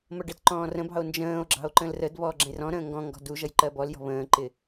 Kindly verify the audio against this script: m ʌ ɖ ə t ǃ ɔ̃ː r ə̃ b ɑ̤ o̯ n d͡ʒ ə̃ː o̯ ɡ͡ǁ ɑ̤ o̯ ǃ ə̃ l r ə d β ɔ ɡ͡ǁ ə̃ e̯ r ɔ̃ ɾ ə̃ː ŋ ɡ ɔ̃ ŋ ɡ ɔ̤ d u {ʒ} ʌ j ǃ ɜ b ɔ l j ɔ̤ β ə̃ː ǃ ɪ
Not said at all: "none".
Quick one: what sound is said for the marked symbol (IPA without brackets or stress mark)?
ʒ